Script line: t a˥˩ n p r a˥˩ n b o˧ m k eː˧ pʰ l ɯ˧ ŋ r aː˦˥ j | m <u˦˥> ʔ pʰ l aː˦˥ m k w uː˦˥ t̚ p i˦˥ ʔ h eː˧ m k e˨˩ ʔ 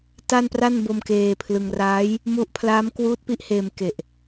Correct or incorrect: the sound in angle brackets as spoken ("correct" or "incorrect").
correct